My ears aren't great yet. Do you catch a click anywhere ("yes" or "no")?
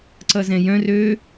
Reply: yes